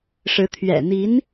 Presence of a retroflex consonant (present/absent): present